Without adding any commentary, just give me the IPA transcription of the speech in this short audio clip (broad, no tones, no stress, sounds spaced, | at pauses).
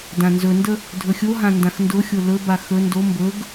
d ã n z ɵ n d ə | dʱ ɵ xʲ o ɦ ã n d ã x n d ʊ xʲ o l ɵ b a x ɵ n d o m b ɵ ɡ